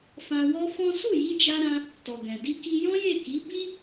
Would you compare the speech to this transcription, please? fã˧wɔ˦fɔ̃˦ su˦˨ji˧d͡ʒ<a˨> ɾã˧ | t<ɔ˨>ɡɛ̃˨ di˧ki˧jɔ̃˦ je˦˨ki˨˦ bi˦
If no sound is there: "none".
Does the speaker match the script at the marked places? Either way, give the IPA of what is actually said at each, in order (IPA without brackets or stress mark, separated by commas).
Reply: a˧, ɔ˨